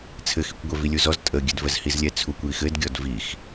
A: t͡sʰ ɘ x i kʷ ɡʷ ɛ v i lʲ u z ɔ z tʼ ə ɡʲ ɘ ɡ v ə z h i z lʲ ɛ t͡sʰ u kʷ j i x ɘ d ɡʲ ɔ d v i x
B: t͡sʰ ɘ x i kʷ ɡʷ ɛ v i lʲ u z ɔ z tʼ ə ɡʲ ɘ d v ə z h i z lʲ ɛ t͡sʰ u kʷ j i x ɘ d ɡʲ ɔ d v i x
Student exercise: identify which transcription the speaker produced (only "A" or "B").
B